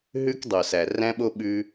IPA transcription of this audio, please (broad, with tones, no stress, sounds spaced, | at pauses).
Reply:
ɦ ʉ˦ k dˤ o˨ s æ˨ r æ̃˦ ɓ o˦ ɓ ʉ˦